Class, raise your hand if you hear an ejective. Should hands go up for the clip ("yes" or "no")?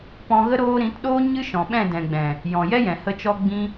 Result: no